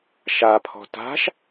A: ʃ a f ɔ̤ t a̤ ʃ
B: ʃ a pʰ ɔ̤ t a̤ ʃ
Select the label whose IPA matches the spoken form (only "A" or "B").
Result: B